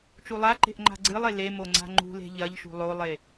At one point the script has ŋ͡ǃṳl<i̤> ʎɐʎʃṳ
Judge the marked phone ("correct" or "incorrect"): incorrect